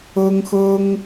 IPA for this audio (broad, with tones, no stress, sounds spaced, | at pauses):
ɤ˥ ŋ x ɤ˥ ŋ